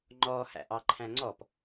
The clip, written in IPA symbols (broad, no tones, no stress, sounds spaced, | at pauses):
ŋ͡ǃ ɔ h æ̰ ʔ ɑ ǃʰ æ̃ ŋ͡ǀ ɔ p